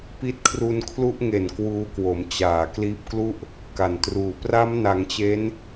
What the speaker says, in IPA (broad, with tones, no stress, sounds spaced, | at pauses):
p i˦˥ t̚ kʰ r u˧ n kʰ l u˦˥ ʔ ŋ e˨˩ n k w uː˦˥ k w o˩˦ m t͡ɕ aː˨˩ k l iː˦˥ p̚ k l u˥˩ ʔ | k a˨˩ n t r uː˨˩ p r a˦˥ m n a˩˦ ŋ t͡ɕ e˦˥ n